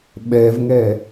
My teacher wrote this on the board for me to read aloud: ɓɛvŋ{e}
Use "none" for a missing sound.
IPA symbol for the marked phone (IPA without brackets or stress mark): ɛ